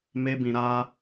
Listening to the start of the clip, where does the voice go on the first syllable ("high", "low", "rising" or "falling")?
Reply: high